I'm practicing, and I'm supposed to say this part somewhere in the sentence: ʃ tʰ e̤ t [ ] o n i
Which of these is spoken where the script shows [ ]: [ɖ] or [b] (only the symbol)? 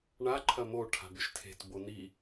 b